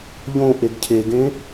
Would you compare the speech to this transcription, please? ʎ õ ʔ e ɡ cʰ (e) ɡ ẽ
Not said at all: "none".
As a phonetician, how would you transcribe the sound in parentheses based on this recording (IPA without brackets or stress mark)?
e